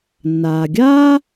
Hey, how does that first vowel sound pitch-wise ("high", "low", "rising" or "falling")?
low